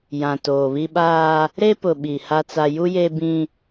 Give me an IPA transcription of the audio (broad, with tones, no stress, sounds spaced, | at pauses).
j ã˨ t oː˨ β i˦ ɓ aː˦ | ɾ e˦ p ʊ˨ ɓ i˨ h a˨ t͡s a˨ j u˦ j e˦ b ĩ˦